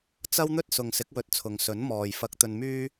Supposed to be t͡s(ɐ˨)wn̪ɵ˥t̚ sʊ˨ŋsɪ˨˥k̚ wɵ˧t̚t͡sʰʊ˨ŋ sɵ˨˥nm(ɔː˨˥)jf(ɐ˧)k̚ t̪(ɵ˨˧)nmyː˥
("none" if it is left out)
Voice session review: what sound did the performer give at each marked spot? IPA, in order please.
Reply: ɐ˥, ɔː˨, ɐ˧, ɵ˧

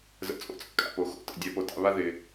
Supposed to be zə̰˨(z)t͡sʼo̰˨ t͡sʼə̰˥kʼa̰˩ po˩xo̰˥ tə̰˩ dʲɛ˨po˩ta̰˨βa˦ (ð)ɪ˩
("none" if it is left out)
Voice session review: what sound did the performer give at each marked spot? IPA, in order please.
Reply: none, ð

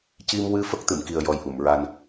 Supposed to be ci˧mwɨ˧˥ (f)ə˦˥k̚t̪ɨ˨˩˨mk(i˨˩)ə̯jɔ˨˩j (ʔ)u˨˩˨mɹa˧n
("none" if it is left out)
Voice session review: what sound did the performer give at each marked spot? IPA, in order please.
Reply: f, i˨˩, ʔ

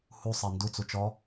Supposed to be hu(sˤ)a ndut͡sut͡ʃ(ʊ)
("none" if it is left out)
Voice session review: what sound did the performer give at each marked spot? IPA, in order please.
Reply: sˤ, ɔ

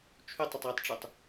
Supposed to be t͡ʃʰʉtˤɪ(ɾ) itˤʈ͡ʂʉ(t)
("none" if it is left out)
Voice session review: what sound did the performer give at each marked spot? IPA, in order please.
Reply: tˤ, tˤ

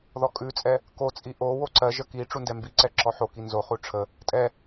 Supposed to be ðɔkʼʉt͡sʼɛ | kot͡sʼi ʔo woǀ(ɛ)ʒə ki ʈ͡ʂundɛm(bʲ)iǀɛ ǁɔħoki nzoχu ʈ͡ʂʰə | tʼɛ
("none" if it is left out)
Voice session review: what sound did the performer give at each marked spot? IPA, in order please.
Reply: ɜ, b

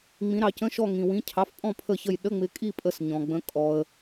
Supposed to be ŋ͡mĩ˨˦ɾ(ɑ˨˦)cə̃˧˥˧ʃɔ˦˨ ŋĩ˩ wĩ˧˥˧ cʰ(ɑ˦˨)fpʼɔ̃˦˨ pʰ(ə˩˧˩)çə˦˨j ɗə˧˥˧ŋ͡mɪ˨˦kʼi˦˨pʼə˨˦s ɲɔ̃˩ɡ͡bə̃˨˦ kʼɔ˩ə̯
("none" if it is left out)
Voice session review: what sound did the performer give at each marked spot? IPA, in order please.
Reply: ɑ˨˦, ɑ˩˧˩, ə˦˨

